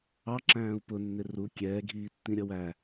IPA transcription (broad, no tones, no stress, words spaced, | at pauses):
ɑ ǁæ̃ːu̯pʊ nːɪru kʲɛːɡʱiː tːĩɾʲʌwæ